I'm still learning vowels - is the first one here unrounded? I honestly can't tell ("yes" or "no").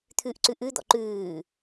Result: no